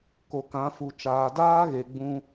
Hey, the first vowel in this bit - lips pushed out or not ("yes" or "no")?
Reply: yes